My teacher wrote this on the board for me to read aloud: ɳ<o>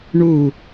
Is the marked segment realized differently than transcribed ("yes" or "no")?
yes